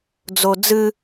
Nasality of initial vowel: oral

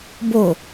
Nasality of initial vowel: oral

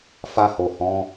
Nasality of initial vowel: oral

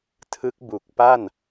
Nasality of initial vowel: oral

